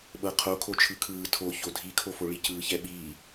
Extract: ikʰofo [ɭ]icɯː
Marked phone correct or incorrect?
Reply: correct